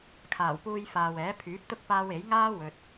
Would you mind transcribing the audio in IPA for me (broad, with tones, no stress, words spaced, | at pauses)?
kʰaː˨˩wpuː˧jfaː˨wɛː˨˥ pʰyː˨˥p̚t̪ʊ˥k̚ paː˧w e˨˥j ŋaː˥wɵ˨t̚